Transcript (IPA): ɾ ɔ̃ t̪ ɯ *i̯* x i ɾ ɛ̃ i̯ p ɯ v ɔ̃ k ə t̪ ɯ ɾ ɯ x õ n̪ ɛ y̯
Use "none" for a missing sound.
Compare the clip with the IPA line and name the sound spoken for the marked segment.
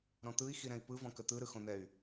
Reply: i̯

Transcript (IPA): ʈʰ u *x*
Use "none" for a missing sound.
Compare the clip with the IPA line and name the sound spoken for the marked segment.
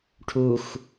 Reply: x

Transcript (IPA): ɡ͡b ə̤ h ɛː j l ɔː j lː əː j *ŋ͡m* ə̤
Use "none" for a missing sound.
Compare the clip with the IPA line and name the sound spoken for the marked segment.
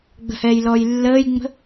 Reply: ŋ͡m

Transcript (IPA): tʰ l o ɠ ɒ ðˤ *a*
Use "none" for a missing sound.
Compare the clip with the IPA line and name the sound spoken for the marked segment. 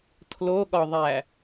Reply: æ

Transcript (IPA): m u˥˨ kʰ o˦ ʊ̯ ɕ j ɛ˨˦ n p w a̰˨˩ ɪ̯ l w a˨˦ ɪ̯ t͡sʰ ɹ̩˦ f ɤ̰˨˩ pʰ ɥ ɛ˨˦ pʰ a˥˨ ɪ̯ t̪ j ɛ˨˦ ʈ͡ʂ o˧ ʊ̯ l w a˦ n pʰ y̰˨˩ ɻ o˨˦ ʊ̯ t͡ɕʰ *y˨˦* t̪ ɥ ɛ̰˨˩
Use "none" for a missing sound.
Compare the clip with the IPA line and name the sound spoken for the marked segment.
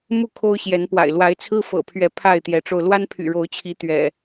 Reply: i˨˦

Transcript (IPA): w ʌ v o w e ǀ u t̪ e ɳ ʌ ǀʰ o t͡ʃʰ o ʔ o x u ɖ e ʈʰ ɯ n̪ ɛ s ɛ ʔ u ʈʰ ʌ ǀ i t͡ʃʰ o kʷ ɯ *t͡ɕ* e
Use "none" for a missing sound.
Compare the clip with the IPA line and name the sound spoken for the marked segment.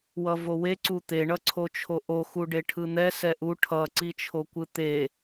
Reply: t̪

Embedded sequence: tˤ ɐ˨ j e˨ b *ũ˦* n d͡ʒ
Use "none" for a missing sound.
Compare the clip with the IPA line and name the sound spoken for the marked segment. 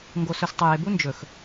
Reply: u˦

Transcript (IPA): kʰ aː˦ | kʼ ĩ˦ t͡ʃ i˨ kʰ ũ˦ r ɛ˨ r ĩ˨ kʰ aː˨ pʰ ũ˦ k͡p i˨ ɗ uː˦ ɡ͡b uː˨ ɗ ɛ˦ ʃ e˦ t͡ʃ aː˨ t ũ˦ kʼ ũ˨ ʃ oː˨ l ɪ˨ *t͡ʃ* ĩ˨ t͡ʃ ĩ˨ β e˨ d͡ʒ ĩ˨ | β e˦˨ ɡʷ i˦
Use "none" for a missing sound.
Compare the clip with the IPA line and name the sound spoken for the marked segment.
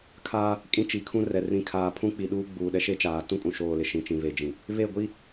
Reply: ʃ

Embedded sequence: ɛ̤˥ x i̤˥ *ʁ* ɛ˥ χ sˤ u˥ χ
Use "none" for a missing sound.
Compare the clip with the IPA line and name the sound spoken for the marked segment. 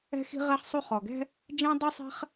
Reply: ʁ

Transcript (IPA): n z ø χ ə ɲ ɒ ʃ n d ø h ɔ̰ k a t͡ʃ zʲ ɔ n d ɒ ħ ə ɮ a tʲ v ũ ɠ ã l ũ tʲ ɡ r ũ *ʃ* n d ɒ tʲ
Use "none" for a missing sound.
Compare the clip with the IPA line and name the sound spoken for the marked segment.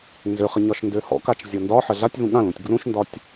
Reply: ʃ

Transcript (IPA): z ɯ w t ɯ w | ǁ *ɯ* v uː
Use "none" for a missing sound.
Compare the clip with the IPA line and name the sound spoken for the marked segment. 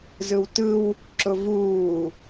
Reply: ʊ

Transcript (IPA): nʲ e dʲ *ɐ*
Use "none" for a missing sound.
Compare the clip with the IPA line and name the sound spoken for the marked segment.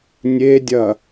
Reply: ɐ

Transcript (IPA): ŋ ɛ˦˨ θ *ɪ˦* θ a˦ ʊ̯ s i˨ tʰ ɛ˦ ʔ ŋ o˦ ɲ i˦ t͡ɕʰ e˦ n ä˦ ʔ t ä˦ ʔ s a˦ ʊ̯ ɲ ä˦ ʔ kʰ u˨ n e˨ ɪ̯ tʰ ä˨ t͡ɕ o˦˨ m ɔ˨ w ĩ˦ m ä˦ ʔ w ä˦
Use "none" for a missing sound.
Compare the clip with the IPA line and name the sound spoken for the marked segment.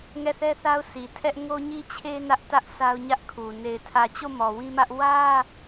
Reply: ɛ˦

